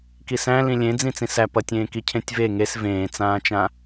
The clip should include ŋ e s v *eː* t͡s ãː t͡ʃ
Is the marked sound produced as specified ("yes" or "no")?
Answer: no